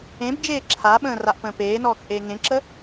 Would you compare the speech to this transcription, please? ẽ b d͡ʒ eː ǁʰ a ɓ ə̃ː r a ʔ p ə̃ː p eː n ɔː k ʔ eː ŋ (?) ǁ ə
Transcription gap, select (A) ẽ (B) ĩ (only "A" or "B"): A